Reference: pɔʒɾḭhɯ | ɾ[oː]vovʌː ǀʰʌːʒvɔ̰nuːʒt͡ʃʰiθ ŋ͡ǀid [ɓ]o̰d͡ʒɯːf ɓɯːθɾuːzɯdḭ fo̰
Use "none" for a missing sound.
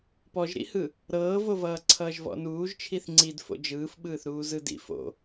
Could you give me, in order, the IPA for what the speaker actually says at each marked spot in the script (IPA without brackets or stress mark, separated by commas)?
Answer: ɤː, f